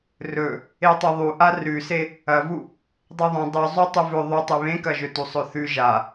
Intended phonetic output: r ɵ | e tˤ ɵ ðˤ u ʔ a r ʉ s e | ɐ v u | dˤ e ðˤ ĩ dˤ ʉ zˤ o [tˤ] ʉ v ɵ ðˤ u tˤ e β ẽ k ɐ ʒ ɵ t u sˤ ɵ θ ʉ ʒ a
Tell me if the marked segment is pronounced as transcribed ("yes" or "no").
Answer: yes